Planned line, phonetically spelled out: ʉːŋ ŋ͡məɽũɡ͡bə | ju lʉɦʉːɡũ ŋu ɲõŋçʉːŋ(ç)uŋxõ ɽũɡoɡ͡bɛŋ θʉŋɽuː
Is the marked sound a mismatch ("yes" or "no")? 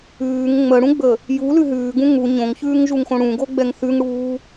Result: yes